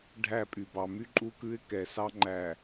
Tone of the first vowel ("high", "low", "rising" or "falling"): falling